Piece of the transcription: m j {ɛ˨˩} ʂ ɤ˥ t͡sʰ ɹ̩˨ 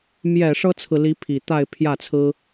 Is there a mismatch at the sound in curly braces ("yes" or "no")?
no